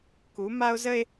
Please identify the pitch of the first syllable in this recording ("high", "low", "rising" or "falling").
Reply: rising